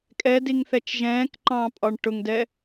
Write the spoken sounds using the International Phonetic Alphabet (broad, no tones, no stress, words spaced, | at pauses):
kʼɛdiŋθɛt͡ʃ ʒɛ̃ːkǃɑ̃ːpʼɒɳ ʈʊŋdɛ